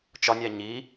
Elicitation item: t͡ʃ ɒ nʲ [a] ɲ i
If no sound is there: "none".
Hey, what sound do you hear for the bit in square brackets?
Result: æ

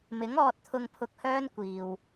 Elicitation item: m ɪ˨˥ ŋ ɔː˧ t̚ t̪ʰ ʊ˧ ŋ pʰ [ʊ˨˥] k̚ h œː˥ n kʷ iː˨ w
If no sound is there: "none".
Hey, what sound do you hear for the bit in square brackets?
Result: ʊ˧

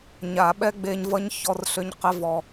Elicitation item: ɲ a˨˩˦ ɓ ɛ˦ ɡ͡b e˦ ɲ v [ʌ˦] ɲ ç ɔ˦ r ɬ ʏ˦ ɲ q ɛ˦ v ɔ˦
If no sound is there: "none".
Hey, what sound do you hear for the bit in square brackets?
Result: ʌ˦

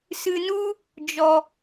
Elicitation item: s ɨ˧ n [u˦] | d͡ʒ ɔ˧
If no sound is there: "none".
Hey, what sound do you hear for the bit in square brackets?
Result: u˦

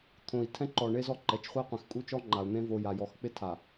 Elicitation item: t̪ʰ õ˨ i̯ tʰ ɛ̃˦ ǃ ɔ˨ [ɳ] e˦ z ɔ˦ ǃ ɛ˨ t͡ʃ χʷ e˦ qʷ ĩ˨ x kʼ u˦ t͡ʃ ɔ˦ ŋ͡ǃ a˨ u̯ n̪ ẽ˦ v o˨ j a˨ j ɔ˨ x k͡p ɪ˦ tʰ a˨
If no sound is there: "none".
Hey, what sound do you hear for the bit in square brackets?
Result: ɳ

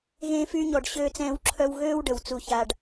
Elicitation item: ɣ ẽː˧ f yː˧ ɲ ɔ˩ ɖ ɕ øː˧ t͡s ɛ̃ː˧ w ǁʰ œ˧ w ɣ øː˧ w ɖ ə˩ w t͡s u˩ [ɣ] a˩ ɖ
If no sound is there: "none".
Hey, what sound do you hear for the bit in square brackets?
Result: ç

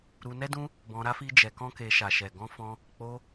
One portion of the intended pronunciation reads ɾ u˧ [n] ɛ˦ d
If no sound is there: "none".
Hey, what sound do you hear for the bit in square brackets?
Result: n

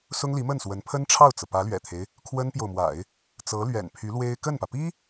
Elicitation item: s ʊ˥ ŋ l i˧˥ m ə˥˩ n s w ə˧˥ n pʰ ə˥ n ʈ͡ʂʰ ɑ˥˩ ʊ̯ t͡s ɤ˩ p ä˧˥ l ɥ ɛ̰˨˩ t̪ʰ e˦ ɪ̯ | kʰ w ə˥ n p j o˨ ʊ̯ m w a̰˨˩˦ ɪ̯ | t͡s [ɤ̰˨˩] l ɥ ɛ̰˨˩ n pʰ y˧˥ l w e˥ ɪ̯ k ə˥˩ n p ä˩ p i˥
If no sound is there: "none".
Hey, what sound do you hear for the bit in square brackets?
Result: ɤ˧˥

